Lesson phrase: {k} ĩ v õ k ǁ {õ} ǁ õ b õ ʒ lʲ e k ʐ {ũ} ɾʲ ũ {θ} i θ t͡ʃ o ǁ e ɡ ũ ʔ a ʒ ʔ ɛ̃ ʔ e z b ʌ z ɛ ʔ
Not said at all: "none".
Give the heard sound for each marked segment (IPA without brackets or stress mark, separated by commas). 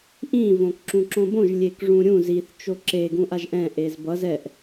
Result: ʔ, ũ, ũ, z